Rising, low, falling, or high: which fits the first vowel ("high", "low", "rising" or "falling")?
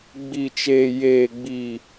low